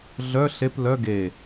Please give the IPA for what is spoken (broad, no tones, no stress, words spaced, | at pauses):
ɮœ ɬep lœ ɡe